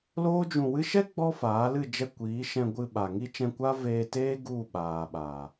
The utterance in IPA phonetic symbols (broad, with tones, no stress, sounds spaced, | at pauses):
l oː˦ d͡ʒ ũ˧ w ɨ˦ ʃ ɛ˦ ɡ͡b ɔ˦ f aː˨˦ l ɨ˦˨ d͡ʒ ɛ˧ kʷ iː˨˦ ʃ ɛ̃˧ ɡʷ ɨ˧ ɓ a˨ ŋ i˧ t͡ʃ ɛ̃˧ kʷ a˦ v eː˧ t eː˦ ɡ u˦˨ ɓ aː˨ ɓ a˨